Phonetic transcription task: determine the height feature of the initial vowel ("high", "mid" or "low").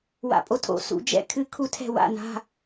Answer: low